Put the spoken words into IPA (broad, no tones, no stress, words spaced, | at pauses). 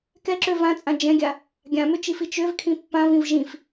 kɛǁø vãt͡sʼã d͡ʒɛ̃ɡʲa | ɡʲãmøt͡ʃifi t͡ʃøvkʰĩ pːãvĩv ʒĩf